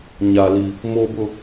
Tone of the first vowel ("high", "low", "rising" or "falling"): high